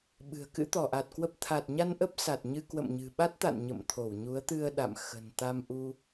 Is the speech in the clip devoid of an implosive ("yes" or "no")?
no